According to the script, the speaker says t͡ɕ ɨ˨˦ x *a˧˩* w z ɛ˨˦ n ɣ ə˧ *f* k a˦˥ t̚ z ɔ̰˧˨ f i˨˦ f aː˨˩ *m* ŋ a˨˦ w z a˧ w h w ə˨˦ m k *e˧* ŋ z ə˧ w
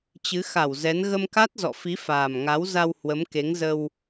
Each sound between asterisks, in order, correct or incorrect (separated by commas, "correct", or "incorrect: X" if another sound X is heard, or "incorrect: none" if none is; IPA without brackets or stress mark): correct, incorrect: m, correct, incorrect: e˨˦